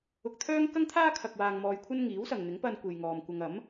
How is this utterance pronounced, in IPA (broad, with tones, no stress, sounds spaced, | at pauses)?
ʊ˧ k̚ t̪ʰ œː˥ ŋ k ɐ˥ ŋ t̪ʰ aː˥ kʰ ɐ˧ k̚ w aː˧ ŋ m ɔː˧ j kʷʰ ɐ˥ n ŋ iː˨˥ w s ɐ˨ ŋ n̪ ɪ˨˥ ŋ p ɐ˧ n kʷ e˨ j ŋ ɔː˨ m kʷ ɐ˧ ŋ ɐ˨˥ m